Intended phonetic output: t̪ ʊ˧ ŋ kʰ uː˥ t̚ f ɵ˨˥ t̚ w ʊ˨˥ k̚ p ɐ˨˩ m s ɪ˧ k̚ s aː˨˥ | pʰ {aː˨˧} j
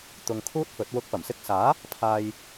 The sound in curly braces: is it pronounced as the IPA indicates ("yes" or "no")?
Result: no